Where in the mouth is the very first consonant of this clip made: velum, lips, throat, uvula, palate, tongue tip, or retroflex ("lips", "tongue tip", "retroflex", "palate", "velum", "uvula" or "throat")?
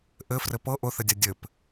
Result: throat